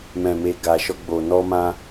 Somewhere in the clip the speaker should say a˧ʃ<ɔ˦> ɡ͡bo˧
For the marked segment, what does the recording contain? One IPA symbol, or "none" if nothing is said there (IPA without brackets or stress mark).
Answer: ɔ˦